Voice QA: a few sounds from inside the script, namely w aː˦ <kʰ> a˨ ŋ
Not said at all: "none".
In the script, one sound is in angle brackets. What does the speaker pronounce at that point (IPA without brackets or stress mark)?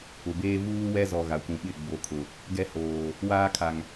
kʰ